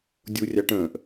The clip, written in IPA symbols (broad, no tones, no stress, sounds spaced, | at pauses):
dʲ u rʲ ɑ ʈ ə̃ː ʔ